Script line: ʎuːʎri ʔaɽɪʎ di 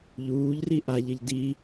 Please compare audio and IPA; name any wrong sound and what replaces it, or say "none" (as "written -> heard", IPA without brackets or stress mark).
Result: ɽ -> ʎ